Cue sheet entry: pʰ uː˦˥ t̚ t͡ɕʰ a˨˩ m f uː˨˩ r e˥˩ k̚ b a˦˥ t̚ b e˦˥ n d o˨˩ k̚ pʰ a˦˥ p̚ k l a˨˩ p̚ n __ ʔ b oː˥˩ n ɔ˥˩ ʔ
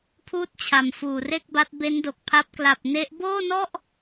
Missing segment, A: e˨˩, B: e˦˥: B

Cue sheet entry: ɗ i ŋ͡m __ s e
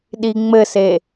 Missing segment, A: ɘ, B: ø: A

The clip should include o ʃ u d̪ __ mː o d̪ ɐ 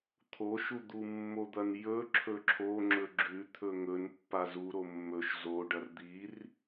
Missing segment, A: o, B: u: B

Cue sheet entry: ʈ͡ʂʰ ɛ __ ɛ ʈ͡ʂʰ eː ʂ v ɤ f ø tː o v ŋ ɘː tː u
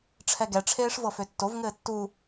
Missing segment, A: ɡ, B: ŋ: A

